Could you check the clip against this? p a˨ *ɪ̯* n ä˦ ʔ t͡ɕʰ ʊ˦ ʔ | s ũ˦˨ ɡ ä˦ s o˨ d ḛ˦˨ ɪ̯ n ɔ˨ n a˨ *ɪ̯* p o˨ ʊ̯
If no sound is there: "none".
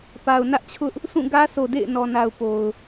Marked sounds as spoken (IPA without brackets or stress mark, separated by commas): ʊ̯, ʊ̯